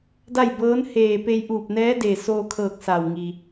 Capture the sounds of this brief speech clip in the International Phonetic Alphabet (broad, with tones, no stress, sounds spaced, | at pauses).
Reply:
d a˥˨ j b ɤː˧˥ n h eː˧˩ p e˧ j ʔ uː˧˩ p̚ n ɛː˧˥ d eː˧˩ s oː˧ kʰ ɤː˧˩ k̚ s a˧˩ w ŋ i˩